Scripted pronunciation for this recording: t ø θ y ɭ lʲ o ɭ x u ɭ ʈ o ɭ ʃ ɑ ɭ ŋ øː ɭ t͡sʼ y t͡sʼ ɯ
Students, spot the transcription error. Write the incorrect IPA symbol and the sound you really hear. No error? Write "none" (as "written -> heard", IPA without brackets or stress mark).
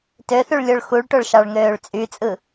none